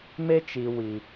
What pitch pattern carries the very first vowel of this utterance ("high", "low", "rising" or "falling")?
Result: high